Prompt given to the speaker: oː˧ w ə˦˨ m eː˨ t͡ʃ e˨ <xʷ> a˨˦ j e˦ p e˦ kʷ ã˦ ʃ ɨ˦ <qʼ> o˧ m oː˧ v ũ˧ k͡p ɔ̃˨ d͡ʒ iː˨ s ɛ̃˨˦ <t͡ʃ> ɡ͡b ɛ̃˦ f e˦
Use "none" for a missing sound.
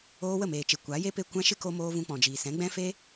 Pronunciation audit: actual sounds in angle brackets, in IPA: kʷ, k, none

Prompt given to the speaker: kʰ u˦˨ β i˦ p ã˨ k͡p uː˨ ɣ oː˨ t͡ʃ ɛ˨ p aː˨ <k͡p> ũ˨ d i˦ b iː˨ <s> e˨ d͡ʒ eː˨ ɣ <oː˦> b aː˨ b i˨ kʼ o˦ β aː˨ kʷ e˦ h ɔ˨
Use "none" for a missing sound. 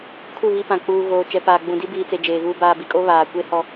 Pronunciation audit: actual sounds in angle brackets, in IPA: ɡ͡b, t͡s, uː˦

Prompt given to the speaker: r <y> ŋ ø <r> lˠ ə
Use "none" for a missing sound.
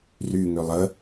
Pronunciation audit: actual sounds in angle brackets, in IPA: y, none

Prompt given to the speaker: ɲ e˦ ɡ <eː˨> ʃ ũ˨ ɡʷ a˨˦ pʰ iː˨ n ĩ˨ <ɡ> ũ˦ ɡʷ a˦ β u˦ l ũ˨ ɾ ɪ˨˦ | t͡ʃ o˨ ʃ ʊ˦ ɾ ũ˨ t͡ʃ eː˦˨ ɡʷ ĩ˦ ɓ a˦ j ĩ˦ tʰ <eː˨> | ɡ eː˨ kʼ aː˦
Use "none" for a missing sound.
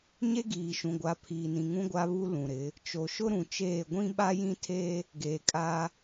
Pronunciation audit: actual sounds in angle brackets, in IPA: iː˨, ŋ, eː˦

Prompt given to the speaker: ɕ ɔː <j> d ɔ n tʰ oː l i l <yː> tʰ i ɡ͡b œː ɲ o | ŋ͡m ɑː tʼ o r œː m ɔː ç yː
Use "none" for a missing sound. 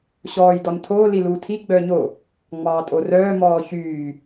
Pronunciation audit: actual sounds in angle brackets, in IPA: j, uː

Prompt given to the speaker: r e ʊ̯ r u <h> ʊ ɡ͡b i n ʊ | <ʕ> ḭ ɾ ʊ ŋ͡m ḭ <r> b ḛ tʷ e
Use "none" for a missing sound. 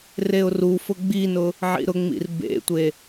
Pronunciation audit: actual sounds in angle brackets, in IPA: f, ʕ, r

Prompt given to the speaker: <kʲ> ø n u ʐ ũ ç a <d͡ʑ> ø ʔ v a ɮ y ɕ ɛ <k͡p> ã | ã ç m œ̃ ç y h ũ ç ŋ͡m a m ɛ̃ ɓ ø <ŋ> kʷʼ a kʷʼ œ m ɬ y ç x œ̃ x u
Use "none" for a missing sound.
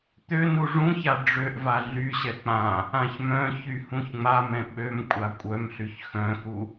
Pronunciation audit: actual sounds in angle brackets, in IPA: t̪, ɖ͡ʐ, k͡p, m

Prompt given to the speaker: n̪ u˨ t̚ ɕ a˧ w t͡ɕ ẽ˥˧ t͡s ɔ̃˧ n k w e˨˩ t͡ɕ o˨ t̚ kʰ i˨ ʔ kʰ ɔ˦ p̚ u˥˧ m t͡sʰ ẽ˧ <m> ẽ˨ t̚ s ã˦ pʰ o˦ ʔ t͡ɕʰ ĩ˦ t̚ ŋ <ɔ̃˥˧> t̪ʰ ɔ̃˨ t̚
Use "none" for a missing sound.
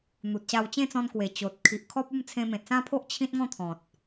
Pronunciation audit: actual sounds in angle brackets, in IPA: m, ɔ̃˥˧

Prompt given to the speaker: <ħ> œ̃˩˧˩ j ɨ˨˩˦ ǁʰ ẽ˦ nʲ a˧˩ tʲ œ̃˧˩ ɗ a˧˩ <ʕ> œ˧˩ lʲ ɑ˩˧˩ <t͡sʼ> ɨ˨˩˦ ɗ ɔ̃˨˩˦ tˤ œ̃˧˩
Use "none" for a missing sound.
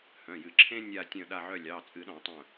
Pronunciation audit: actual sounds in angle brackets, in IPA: h, ʕ, t͡sʼ

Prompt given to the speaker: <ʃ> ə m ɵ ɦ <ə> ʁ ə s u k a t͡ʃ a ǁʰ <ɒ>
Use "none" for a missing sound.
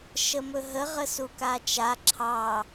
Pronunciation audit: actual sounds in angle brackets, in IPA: ʃ, ə, ɑ

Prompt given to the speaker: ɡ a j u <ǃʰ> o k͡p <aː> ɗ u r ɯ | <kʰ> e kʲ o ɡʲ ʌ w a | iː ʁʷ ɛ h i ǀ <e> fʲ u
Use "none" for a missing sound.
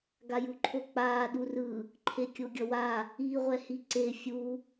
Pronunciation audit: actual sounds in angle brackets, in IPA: ǃʰ, aː, ǃʰ, e

